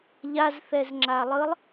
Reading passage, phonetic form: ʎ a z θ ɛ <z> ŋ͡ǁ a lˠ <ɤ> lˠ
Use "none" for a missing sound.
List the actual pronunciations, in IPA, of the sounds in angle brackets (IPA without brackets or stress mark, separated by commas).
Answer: z, ɯ